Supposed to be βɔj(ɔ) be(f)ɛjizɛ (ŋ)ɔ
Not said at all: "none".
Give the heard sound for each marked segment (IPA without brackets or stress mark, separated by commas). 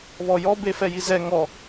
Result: ɔ, f, ŋ